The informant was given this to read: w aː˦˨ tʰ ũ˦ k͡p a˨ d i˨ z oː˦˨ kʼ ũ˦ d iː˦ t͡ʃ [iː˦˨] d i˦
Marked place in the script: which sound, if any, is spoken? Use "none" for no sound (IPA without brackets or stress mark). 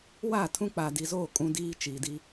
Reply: iː˨